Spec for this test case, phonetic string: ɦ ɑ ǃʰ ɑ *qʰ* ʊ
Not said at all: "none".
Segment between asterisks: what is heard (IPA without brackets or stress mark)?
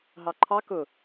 k